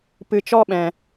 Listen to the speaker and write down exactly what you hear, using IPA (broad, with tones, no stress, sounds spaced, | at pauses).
p ɨ˧ t͡ʃ ɔ˦ ɓ ɛ̃˧